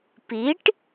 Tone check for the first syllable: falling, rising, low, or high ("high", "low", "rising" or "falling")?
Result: rising